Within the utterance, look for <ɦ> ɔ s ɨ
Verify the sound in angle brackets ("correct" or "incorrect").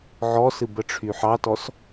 incorrect